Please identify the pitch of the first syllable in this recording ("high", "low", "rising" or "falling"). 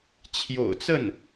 low